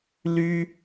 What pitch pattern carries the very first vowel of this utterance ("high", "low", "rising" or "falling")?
high